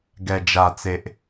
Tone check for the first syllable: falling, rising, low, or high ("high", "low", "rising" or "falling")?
low